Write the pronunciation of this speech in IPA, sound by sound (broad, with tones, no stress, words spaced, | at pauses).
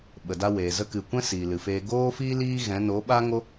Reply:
ɓə˨da˧weː˨ zə˧kɨ˨kʷɛ̃˦ siː˨lɨ˨feː˧ ɡoː˦fiː˦ liː˦ɣɛ̃˨˦ no˨˦ɓa˦ŋo˦